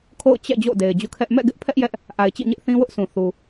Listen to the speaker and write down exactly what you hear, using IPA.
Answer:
kʰ o̰˦˨ ʊ̯ t͡ɕ ɛ̰˦˨ d͡ʑ o̰˦˨ ʊ̯ d e˨ ɪ̯ d͡ʑ ṵ˦˨ kʰ ɛ˦ ʔ m ɛ̰˦˨ ɡ ɪ˦ ʔ pʰ ɛ˦ ʔ j ɛ˦ ʔ | ʔ a˨ ɪ̯ t͡ɕ ḭ˦˨ ɲ ɪ˦ ʔ θ ĩ˦ w ʊ˦ ʔ sʰ ũ˨ θ u˨

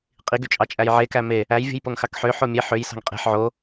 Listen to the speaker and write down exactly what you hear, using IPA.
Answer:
qʼ i ɡ y t͡ʃʼ ɑ t͡ʃʼ æ j ʕ e k æ m e | æ j vʲ ṳ j p o ŋ x ɑ k ħ ø ħ o mʲ e ħ ø j s ɑ̤ ŋ qʼ e̤ ħ ʕ o

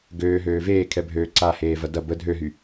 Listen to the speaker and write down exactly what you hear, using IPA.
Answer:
ɡ øː ɦ øː v eː kʰ ɛ bʱ øː ǀ a h eː v ɐ d ɐ b ə dʱ ø ɦ y

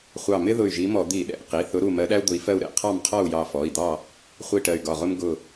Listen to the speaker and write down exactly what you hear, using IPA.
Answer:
χʷ ɑ˧˩ m ɪ˥ ð ʊ˧˩ y̯ ʒ i˨˦ m ɔ˧˩˧ d̪ i˧˩˧ ɗ ɛ̰˩˧˩ q i˩˧˩ θ ʊ˨˦ ɾ u˧˩ m ɜ˨˦ ɗ æ˥ u̯ d̪ ʊ˨˦ i̯ f ɜ˥˨ u̯ ɾ ɛ̰˧˩ qʰ ɑ˥˨ m qʰ ɔ˥˨ u̯ j ɑ˧˩ f ɔ˩˧˩ i̯ d̪ ɑ˥˨ | χʷ i˥˨ ʈ ɜ˧˩ y̯ ɡ ɒ˧˩ ʁ ʊ˥ m ɡ ʊ˧˩

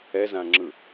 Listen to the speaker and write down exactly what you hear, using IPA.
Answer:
ɛ z ã ŋ͡ǁ ɯ

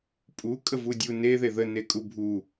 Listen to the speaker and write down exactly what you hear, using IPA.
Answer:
pʼ u kʼ ə v u dʲ u n e ð e ð ə n e kʼ u bʱ u

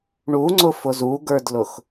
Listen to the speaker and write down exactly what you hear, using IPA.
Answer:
ɳ u ŋ͡ǀ ʊ f ʊ z u ɡ ə˞ d l ʊ x

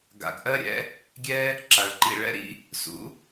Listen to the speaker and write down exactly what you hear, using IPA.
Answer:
ɡ a̰˨ ɡ ʔ ɜ˧ ɾʲ ɛ̰˧ | ɡʲ ɛ˦ | ǁ a˨ ɭ ǃ ḭ˦˨ ɭ ɛ̰˦ ɾ ḭ˧ | s ṵ˨˦

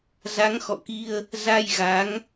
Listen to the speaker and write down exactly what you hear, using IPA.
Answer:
z a˨˦ ŋ x ɔ̰˧˨ k i˧ ə̯ | z a˧ j ɣ a˨˦ ŋ

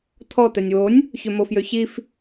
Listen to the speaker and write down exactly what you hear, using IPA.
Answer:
t̪ʰ ɔ t̪ ɛ nʲ w o nʲ | ç ø m o f j ø ç i f

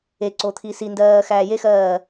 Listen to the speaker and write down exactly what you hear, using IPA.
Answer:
e ǀ o t̪ʰ i s i n d ɜː x æː j e x ɜː

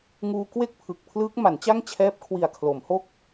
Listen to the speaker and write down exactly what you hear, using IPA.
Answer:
ŋ uː˧ k w e˥˩ k̚ pʰ ɯ˨˩ k̚ pʰ l ɯː˦˥ k̚ m a˩˦ n t͡ɕ a˥˩ ŋ t͡ɕʰ ɛː˦˥ p̚ kʰ w i˨˩ a̯ kʰ l o˩˦ m h o˥˩ k̚

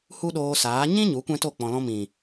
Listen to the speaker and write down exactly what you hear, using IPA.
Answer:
h u˦ ɗ oː˧ s aː˨˦ ɲ ĩ˦ ɲ u˨˦ kʷ ɛ̃˦ t o˦˨ k͡p ɔ̃˨ l ɔ̃˧ m ĩ˨

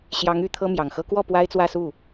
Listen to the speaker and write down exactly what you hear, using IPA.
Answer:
ɕ j ɑ˧˥ ŋ y˨˩ t̪ʰ ɤ˥ m j ɑ˨˩ ŋ x ɤ˥ k w ɔ˥˩ p w a˥ ɪ̯ t͡s w ä˥˧ s u˥˩

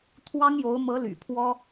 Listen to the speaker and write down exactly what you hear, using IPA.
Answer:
t̪ʰ w ɑ˥ ŋ j o˧˥ ʊ̯ m ɤ˧˥ l y̰˨˩ pʰ w ɔ˥

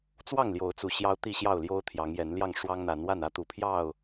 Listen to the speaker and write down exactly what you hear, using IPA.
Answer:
t͡s w ɑ˥˨ ŋ l j o˨˦ ʊ̯ t͡s u˨˩ ɕ j ɑ˦ ʊ̯ t̪ i˥˨ ɕ j ɑ˥˨ ʊ̯ l j o˦ ʊ̯ t̪ʰ j ɑ˨˦ ŋ j ɛ˨˦ n l j ɑ˥˨ ŋ ʂ w ɑ˦ ŋ n̪ a˨˦ n w a˥˨ n ä˦ t̪ u˨˩ pʰ j ɑ˥˨ ʊ̯

